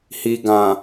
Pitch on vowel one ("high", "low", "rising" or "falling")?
low